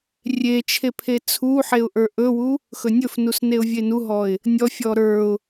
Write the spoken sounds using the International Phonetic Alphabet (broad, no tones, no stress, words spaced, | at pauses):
rʲet͡ʃʰe pʰet͡sʰuħeʊ̯ ʔə˞ʔɵwu | xɵnʲɵfnus neʊ̯vʲenuɦɔɪ̯ | nʲɔfʲɔ ɾə˞ʊ̯